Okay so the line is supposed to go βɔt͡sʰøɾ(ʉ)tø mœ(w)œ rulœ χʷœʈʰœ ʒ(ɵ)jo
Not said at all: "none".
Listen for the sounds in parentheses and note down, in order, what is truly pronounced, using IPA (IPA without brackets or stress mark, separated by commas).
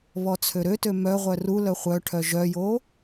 ø, ʁʷ, œ